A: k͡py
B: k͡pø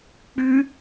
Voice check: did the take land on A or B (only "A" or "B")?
A